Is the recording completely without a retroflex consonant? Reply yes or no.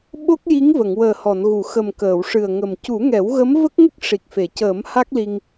no